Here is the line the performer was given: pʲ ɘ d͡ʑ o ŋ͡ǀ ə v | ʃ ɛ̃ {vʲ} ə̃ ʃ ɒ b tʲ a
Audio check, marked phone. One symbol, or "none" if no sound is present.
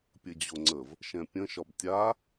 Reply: pʲ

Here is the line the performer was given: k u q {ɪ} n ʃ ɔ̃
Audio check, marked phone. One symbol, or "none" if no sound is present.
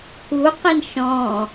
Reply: ɪ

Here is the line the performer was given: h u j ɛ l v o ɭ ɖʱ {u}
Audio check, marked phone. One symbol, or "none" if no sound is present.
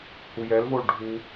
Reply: u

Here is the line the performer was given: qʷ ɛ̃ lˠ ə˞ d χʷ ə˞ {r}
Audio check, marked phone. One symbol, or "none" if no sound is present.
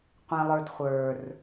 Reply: r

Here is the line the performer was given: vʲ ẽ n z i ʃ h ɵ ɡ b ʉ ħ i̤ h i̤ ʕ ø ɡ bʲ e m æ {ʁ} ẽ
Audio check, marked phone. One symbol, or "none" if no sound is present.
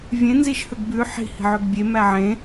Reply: ʕ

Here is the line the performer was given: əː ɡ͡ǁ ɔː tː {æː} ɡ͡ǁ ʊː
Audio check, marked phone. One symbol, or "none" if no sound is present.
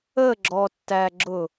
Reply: æː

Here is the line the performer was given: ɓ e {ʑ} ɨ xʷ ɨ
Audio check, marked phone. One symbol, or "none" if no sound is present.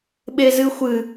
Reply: z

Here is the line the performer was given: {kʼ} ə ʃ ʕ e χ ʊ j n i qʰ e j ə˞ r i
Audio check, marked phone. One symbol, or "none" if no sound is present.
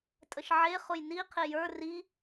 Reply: tʼ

